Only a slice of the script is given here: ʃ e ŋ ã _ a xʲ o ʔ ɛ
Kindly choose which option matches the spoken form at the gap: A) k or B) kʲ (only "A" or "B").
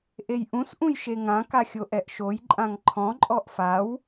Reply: A